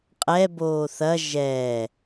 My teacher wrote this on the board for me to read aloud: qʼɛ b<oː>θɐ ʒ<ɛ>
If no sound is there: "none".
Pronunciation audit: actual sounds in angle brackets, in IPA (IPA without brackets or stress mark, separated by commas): oː, ɛː